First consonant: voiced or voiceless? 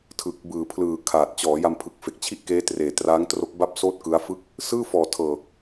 voiceless